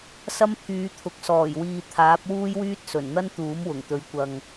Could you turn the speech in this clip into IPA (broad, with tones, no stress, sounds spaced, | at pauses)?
s ɐ˥ m pʰ yː˨˧ t̪ʰ ʊ˨˥ k̚ s ɔː˨˩ j w iː˨ t̪ʰ aː˨˥ p̚ w uː˥ j w yː˥ t̚ s ɵ˨˩ n n̪ ɐ˥ n t̪ uː˨˥ m w ʊ˨˩ ŋ t̪ ɵ˨˧ ɥ kʷ ɐ˨ ŋ